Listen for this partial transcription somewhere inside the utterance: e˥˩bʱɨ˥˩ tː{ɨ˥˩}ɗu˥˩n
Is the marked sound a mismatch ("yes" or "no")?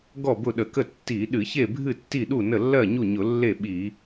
yes